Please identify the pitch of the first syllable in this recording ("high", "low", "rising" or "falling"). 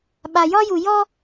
low